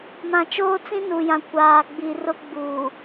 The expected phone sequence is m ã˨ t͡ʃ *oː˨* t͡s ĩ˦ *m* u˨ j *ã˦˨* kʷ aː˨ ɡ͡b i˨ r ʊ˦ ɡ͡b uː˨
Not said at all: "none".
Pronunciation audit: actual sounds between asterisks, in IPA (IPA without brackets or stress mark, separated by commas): oː˦, n, ã˨